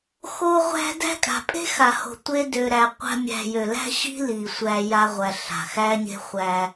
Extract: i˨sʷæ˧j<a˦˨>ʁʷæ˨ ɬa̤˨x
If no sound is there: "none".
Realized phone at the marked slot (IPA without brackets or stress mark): a˧